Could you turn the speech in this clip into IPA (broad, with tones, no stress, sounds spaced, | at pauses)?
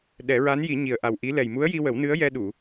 ɗ ɛ˨˩˦ ɹ a˧˥ n j i˨˩˦ ɲ i˨˩ ə̯ ʔ a˨˩ w ʔ i˧˥ l ɛ˨˩ j m u˧˥ ə̯ j i˧ w ə˨˩˦ w n ɨ˧˥ ə̯ j ɛ˧ ɗ u˨˩˨